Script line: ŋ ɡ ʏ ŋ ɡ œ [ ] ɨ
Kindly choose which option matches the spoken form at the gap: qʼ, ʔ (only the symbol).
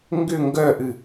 ʔ